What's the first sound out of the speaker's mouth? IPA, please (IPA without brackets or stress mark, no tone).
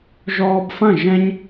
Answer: ʒ